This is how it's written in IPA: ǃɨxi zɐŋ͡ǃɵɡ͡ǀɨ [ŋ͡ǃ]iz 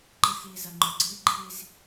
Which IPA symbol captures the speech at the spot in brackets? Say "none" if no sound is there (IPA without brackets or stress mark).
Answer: ɡ͡ǃ